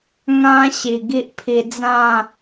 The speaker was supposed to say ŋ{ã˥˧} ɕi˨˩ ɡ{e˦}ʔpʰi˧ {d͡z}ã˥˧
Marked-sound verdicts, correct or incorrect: incorrect: ã˦, incorrect: i˦, correct

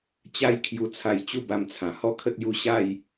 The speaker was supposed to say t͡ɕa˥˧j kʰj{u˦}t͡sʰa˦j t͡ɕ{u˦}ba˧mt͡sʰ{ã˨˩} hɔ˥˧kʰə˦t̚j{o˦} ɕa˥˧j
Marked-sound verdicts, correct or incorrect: correct, incorrect: u˥˧, correct, incorrect: u˦

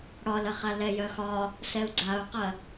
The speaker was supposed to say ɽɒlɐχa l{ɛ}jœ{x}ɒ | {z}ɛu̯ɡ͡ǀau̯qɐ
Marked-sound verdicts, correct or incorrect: correct, correct, incorrect: s

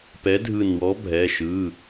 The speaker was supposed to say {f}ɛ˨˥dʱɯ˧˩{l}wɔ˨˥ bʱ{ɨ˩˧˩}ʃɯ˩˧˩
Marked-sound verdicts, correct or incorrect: incorrect: p, incorrect: n, incorrect: ɛ˩˧˩

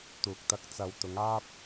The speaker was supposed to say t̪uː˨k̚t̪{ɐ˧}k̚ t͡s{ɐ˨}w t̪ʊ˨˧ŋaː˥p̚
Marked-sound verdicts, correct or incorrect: correct, correct

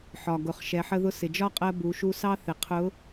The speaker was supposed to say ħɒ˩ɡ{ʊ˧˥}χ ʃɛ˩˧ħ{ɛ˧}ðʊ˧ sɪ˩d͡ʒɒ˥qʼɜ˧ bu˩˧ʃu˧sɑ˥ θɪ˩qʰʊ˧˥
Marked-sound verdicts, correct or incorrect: incorrect: ʊ˩˧, incorrect: ə˧

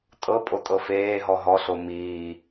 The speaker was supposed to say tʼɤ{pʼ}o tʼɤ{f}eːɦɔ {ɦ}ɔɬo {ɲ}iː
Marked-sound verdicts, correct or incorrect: correct, correct, correct, incorrect: m

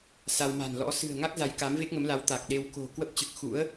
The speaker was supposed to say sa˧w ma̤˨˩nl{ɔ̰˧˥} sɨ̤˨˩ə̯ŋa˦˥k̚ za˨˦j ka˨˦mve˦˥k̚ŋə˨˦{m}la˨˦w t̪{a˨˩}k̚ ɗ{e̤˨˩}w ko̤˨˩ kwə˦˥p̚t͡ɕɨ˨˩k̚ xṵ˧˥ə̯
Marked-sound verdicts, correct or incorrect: correct, correct, correct, incorrect: e˧

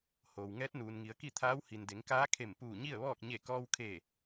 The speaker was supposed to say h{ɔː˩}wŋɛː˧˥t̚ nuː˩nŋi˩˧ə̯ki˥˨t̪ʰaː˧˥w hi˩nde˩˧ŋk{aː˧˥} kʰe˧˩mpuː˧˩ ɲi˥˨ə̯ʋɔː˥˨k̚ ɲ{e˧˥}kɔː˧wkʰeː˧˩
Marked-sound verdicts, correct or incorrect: incorrect: oː˩, correct, incorrect: e˧˩

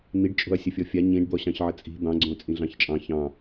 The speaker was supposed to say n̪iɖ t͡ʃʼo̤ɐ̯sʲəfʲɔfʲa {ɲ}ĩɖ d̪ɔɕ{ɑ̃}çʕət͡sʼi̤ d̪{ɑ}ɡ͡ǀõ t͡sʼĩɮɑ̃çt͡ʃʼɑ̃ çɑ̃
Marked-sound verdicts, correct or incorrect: correct, correct, incorrect: ɑ̃

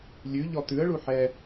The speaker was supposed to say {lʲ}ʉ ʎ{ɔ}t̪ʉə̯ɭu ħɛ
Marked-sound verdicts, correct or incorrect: correct, correct

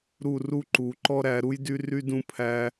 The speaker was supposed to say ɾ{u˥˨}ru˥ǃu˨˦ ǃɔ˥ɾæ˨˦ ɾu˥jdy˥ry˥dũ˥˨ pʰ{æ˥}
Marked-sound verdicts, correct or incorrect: correct, correct

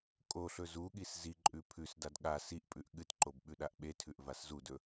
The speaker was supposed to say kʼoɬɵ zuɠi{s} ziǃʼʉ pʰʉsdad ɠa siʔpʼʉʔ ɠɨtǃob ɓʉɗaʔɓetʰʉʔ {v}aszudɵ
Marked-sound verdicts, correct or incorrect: correct, correct

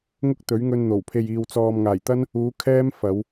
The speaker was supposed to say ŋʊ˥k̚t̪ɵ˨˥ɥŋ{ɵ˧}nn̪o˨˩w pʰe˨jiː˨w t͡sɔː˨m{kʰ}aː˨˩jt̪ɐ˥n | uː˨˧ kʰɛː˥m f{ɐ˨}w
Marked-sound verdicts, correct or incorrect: correct, incorrect: ŋ, incorrect: ɐ˨˧

